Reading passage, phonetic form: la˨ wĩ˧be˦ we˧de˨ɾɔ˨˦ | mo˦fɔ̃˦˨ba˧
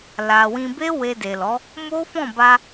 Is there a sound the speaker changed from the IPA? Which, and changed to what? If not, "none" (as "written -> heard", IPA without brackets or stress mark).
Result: ɾ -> l